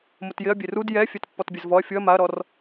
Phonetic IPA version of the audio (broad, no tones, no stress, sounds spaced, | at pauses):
m ʊ t j ɪ ɐ̯ bʲ e r u d j ɛ fʲ ɛ t pː ɔ t bʲ e z v ɔ ɐ̯ fʲ ʊ ɐ̯ m a ɐ̯ ɾ ɔ r